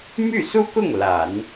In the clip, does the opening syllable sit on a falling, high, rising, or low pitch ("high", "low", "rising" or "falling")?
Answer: falling